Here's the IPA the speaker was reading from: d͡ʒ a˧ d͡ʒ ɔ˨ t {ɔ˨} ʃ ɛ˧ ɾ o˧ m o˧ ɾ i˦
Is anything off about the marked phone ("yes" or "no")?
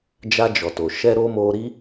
yes